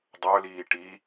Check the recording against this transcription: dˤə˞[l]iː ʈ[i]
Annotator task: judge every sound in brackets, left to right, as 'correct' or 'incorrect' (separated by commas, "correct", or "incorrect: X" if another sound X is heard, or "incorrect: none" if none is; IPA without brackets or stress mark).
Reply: correct, correct